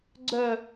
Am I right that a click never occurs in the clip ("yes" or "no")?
no